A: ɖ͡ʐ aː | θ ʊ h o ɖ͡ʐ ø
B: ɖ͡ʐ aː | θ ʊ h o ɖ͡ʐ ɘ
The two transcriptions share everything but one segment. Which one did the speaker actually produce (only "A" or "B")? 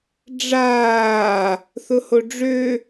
A